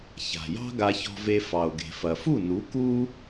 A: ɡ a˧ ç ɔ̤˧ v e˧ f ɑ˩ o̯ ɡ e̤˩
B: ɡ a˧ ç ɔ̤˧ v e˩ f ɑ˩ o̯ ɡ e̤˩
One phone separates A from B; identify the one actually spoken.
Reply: A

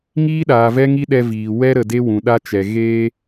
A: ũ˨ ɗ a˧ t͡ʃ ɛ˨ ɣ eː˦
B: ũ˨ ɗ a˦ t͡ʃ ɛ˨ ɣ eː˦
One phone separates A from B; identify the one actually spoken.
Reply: B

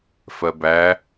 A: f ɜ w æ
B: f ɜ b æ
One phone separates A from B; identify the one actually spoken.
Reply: B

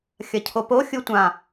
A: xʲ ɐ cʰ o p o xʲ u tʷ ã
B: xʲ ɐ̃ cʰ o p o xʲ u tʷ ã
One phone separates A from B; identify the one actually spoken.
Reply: A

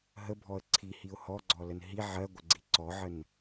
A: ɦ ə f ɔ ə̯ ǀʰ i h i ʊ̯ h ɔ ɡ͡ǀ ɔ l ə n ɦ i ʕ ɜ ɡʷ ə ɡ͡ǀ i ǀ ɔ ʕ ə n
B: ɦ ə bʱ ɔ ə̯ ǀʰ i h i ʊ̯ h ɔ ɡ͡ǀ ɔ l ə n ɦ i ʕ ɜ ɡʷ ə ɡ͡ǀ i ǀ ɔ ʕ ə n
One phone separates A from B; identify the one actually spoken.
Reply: B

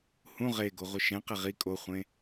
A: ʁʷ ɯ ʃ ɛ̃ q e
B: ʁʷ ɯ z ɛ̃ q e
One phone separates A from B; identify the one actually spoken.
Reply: A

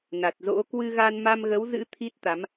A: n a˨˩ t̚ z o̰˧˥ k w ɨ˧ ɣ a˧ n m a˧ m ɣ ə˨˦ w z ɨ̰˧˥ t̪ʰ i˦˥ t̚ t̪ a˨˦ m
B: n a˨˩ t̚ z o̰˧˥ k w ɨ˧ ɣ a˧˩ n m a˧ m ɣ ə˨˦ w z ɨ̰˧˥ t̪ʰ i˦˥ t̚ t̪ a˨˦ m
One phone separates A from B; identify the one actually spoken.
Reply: A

